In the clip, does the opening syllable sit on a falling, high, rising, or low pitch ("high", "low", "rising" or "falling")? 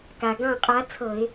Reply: low